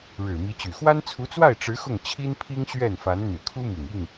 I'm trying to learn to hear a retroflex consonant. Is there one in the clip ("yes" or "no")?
yes